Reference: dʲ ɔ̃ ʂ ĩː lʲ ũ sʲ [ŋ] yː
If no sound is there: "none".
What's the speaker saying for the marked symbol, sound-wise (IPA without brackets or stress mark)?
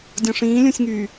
ŋ